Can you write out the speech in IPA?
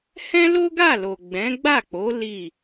h ɛ̃˦ l o˦ ɡ a˦˨ l o˨ ɡ͡b ɛ̃˨˦ ɡ͡b a˦˨ k͡p o˨˦ l i˦˨

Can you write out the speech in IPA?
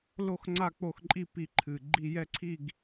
l o˦˨ x ŋ͡ǀ a˦˨ k͡p o˦˨ x ǃʼ i˦˨ p i˨˩ ǃʰ ɨ˨˩ ɡ͡ǃ i˦˨ j ɛ˦ ǀʰ i˦˨ ɡ

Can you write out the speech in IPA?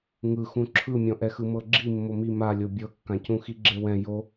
ŋ ɯ x ũ ǁʰ ɯ mʲ ɔ̃ ʔ ɛ x ɯ m ɤ ɡ͡ǁ i mː o m i m a lʲ o bʲ ɤ kː ã c ũ x i ɡ͡ǁ e w ɛ̃ j o

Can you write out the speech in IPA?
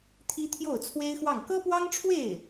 t̪ʰ i˥ t̪ʰ j o˥˩ ʊ̯ t͡sʰ w e˥ ɪ̯ x w ɑ˥˩ ŋ k ɤ˥ p w ɑ˥ ŋ ʈ͡ʂʰ w e˥˩ ɪ̯

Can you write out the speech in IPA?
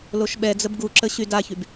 l o ʃ ɓ ɛ d͡z ə b ɡ u ǁ ə ɕ y d a ç y b

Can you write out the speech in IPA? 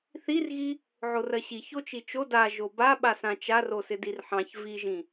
θ i r ɣ i | ʕ o r ɜ ɕ i ç o t͡ʃ i t͡ʃ o d a ʒ o b a ɓ a s ã t͡ʃ a r o s ɪ d i r ħ ɑ̃ ç v i ʒ ĩ

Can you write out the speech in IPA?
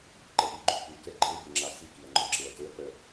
ǃ ɛ ʔ i ɡ͡ǃ y k͡p y k ɛ ɡ͡ǃ e b e ŋ͡ǁ ɑ s i k i ɐ̯ ŋ͡ǃ œ ǁ e ɐ̯ t ɵ ɐ̯ k͡p œ

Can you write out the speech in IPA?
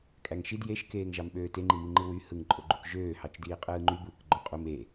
kʼ æ ŋ ʃ i d j e ʃ k eː ŋ ʒ ɑ m ɓ øː t e ŋ͡ǃ i m i ŋ͡ǃ ɯ w y h ɯ ŋ ǃʼ o ɡ͡ǃ u k ʒ øː h ɑ t͡ʃ d iː qʼ ɯː ŋ͡ǃ y b ɯː k ɡ͡ǃ o qʼ u m e

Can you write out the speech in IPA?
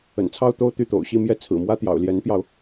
ə̰˨˩ n t͡sʰ ɑ˥˧ ʊ̯ t̪ o˥˧ ʊ̯ t̪ y˥˩ t̪ o̰˨˩ ʊ̯ ɕ i˥˧ m j ɛ˥˩ t͡sʰ ɹ̩˨˩ m w ä˥ t̪ j ɑ̰˨˩ ʊ̯ l j ɛ˧˥ n p j ɑ˧ ʊ̯

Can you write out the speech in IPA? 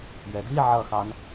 j ɛ d i ʕ ʌ x ɑ n

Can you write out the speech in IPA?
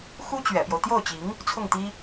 x u˥ t͡ɕ ɥ ɛ̰˨˩ p j o˦ ʊ̯ t̪ j o˥˩ ʊ̯ t͡ɕ i˧˥ ŋ | t͡sʰ ʊ˥˩ ŋ t̪ i˥

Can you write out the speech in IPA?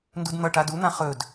n d u d n̪ ʌ ʈ a d u n̪ ã χ ɵ d

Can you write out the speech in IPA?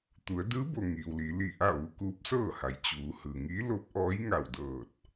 t̪ u˩˧ ə̯ d ɯː˧˥ b o˩ ŋ iː˩ w l i˩˧ l i˧˩ ʔ a˥˨ ʋ u˧ k uː˧˥ p̚ s ɤː˥˨ h a˩˧ j t͡ɕ uː˩˧ h ɯː˩ ŋ iː˧˥ l o˧˥ p̚ ʔ ɔː˧˥ j ŋ a˧˩ w d ɤː˧˩ t̚

